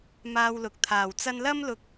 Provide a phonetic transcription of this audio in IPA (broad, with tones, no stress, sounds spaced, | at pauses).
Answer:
m aː˧ w l ʊ˨ k̚ t̪ʰ aː˨˩ w t͡s ɐ˧ n l ɐ˥ m l ʊ˧ k̚